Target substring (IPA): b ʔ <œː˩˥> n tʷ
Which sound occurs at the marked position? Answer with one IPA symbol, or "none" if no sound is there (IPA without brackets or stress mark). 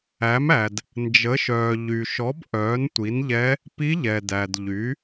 œː˩˥